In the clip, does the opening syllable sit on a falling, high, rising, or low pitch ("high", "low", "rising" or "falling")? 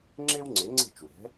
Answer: high